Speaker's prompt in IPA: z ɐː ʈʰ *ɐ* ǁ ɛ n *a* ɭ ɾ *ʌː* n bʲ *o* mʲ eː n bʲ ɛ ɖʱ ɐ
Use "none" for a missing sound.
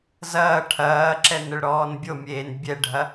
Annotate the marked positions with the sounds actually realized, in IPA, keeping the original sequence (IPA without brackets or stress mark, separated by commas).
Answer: ɐː, ə, ɔː, o